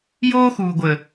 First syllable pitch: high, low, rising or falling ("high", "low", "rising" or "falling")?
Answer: high